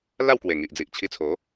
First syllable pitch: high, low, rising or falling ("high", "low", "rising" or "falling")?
falling